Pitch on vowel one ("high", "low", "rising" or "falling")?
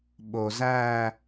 low